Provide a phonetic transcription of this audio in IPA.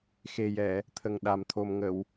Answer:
xe˨˩jɛ˨˩˨ | t̪ʰə˨˩ŋɗa˨˩mt̪ʰo˨˩m ŋə˨˩˨w

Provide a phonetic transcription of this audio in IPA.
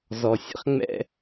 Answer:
zɔ˧ sʲə̰˦χŋ͡mɛ̰˦

